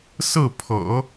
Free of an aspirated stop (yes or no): no